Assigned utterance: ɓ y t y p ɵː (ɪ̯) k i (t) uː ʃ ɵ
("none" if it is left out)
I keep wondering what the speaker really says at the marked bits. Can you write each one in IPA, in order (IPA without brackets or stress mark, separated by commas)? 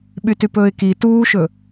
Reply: ɪ̯, t